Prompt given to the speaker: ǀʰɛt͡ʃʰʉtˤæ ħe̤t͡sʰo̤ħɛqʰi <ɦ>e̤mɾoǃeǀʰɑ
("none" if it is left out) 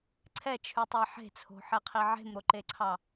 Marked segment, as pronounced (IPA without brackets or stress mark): ʕ